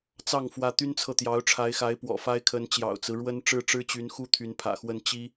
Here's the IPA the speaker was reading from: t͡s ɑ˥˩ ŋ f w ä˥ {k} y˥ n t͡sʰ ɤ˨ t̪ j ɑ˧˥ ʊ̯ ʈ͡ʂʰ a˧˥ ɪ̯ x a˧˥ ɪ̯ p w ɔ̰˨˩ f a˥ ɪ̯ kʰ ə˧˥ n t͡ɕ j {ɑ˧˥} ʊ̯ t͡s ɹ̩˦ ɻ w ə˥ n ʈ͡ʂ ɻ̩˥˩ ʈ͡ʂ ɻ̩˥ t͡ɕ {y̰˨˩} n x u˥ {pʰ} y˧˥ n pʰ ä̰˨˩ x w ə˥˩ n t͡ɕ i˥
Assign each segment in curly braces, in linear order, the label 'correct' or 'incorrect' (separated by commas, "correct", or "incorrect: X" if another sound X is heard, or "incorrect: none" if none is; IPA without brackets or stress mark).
incorrect: t̪, incorrect: ɑ̰˨˩, incorrect: y˧˥, incorrect: t̪ʰ